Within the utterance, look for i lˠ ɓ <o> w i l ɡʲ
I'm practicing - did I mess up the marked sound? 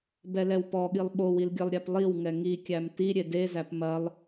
no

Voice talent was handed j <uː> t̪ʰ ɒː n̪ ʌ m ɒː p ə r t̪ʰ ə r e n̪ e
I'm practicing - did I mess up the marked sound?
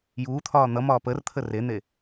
no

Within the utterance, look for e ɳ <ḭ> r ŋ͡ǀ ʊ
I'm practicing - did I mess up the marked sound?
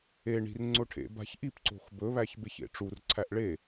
yes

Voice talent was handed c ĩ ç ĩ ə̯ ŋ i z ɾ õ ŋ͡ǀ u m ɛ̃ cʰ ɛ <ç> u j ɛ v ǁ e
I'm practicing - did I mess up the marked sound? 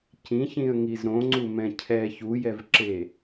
no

